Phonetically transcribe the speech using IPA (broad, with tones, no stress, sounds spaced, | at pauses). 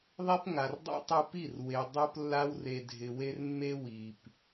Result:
ðˤ e˦ p ŋ a˨ r dˤ ɛ̰˦ tˤ u˧ p i˦˨ r w e˧ dˤ o˦ p lː a˦ w r e˨ dʱ ɪ˨ w e˦ r mː e˦ w i˨ p